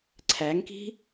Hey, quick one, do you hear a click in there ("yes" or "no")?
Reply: yes